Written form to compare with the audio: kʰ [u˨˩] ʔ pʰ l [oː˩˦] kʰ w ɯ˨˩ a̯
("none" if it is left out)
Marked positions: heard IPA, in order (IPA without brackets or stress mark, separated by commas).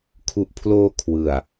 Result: u˨˩, oː˧